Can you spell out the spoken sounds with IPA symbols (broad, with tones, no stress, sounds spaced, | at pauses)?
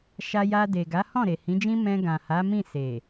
ʃ a˧ j a˧ d e˨ ɡ a˨˦ h ɔ̃˦˨ ɾ e˨ h ĩ˨˦ d͡ʒ ĩ˦ m ɛ̃˧ ɡ ã˨ h a˨˦ m ĩ˦˨ s e˨